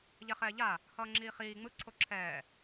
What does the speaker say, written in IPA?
ʎɛχɛːʎa | hʌːŋ͡ǁiːχiː ŋ͡mɯ ǀʰoǁʰɛː

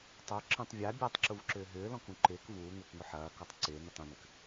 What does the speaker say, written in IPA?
tˤœ ǁə̃tˤ vʲa bʲatˤǁuvǁʏː ɦʏːlɔ̃kũ ǃɪːk vuːŋʏːkŋʊ ħɐːkɔtˤ ǀɪːnʏtˤ ũnʏk

